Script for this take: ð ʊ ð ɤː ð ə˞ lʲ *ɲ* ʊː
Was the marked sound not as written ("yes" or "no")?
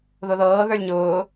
no